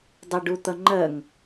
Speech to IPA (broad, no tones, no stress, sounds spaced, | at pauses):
dˤ ʌ ɖ u t̪ ʌ ŋ͡ǃ ɜ ŋ